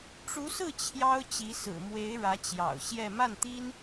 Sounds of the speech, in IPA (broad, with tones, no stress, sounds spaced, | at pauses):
ʈ͡ʂ u˧˥ s ɹ̩˥˩ t͡ɕʰ j ɑ˥ ʊ̯ t͡ɕ i˧˥ s ɹ̩˨˩ m w e˧˥ ɪ̯ ɻ ä˧˥ t͡ɕ j ɑ̰˨˩ ʊ̯ ɕ j ɛ˥˧ m a˥˩ n t̪ i˥ n